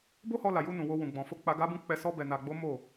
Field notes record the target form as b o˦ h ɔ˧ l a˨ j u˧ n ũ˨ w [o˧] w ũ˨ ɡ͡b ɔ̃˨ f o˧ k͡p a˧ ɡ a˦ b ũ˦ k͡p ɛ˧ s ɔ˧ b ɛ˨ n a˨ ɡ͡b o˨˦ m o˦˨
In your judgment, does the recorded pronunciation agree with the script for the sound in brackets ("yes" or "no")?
yes